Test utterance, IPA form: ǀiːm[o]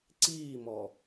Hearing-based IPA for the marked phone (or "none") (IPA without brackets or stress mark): ɔ